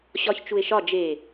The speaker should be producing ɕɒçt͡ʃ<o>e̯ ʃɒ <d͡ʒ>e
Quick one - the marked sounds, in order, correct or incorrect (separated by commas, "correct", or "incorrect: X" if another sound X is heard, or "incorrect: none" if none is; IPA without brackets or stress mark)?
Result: incorrect: u, correct